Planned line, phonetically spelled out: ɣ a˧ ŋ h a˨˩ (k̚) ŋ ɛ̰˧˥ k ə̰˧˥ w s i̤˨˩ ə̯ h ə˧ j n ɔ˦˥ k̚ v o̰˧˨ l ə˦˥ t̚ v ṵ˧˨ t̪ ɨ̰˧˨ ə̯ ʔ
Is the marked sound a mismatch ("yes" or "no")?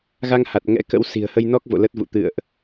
yes